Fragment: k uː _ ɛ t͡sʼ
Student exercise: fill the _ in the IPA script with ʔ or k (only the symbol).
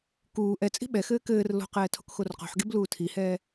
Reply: ʔ